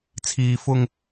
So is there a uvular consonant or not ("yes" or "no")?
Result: no